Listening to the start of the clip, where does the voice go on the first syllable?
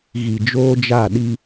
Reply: low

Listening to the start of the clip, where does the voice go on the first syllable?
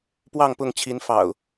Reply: falling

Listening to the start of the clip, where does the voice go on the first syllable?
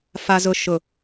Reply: low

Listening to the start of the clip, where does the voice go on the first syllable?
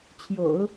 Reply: low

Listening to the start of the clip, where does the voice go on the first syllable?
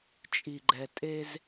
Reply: low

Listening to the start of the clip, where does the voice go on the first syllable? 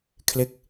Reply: falling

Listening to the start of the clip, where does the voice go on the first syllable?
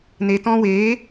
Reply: low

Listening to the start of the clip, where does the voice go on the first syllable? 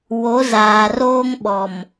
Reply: rising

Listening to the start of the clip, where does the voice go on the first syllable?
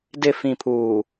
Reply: low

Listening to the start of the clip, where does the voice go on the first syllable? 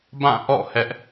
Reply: falling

